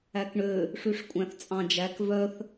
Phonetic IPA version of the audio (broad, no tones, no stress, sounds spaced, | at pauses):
æ k ɳ ø | ʂ y ʂ kʷʼ æ̃ θ t͡sʼ ɑ̃ d͡ʒ æ k v œ θ